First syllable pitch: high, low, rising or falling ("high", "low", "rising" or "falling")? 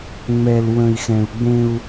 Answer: low